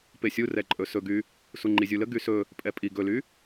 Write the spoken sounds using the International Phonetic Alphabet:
p e sʲ u r ɛ ǃʼ ɵ s ɵ ɡ y | s u ŋ͡ǃ i zʲ u l ə ɡ y s ɵ | pʼ ɛ pʼ i ɡ ɵ l y

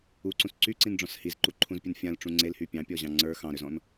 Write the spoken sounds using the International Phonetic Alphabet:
u ǀ ũ s ǀ y ǀ ĩ n ɖ͡ʐ ɔ̃ s h i z ǃ u ǃʰ ũ z pʲ u n fʲ ã l ʈ͡ʂ ũ ŋ͡ǀ e l h y pʲ ɑ̃ pʲ ɔ ʑ ɑ̃ ŋ͡ǀ ə˞ x ɑ̃ ɾ ø z ɔ̃ n

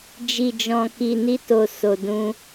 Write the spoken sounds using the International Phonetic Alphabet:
d͡ʒ i˨ d͡ʒ ɔ̃˨ k i˨ n i˧ t o˨ s o˨ d ũ˧

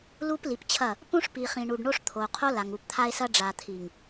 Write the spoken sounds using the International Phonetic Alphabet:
l u˦ p l i˨ p t͡ɕʰ ɐ˦˨ | p ũ˦ ʂ p i˨ χ ĩ˨ ɳ u˨ ɖ ɳ o˦ ʂ t̪ʰ o˨ qʰ o˦ l a˨ ŋ u˨ p t̪ʰ a˦ e̯ s ɐ˦ ɖ͡ʐ a˨ t̪ʰ i˨ ŋ

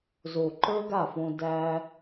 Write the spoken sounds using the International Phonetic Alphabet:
z o˨ ǃ ə˞˦ ɡ a˦˨ f õ˧ d æ˧

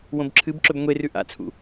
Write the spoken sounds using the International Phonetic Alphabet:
w õ b ǁʰ ɨ b ǁ ɵ b ŋʷ e r ʉ ʔ a̰ t͡sʰ ṵ

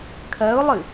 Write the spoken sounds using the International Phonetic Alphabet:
kʰ ɜ ʊ̯ lˠ ɨ

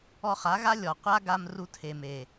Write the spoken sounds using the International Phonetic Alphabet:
ɔ˧ χ a˨˦ ɣ a˦ lʲ ɔ˨ qʷ a˦ ɡ a˧ m r u˧ tʰ e˨ m e˨

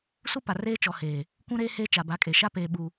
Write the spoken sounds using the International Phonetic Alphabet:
s u˦ p a˨ r eː˦ t͡ʃ ɔ˨ h eː˨ | kʷ ũ˦ ɾ eː˦ h eː˦ t͡ʃ a˨ b a˨˦ kʼ e˨ ʃ a˦ p eː˨ ɓ u˨

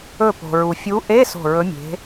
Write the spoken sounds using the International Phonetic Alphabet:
ɵ˧˩ p o̤˩ ɹ u˩ fʲ u˨˦ ʔ e˧˥˧ s o̤˧˩ ɹ ɵ˨˦ mʲ e̤˨˦

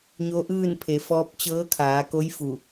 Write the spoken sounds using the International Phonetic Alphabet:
ɲ o˧˥ ʔ ɯː˥˨ n pʰ e˩˧ f ɔː˧˥ p̚ t͡ɕ ɤː˧˥ kʰ aː˩˧ k o˧˥ j f u˧˩

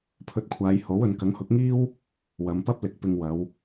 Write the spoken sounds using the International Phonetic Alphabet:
pʰ ɵ˧ t̚ kʷʰ aː˨˧ j h o˨˥ w ɵ˨˧ n k ɐ˨˥ ŋ h ʊ˨˥ k̚ ŋ iː˥ w | w ɐ˨˧ m p ɐ˥ p̚ l ɪ˨˥ k̚ p ɪ˧ ŋ w ɐ˨˧ w

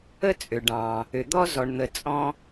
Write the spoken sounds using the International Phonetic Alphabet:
ə˧ t͡sʼ ʏ˩ ɖ ɑ̃˩ | ʏ˩ d̪ ɔ˧ z ɔ˩ ɳ n̪ ə˩ t͡sʼ ɔ̃˧

